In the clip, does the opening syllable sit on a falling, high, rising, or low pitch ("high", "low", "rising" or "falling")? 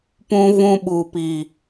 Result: high